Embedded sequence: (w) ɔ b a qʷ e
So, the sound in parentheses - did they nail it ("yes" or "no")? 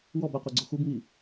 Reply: yes